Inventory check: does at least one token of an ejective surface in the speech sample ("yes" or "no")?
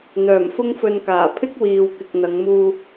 no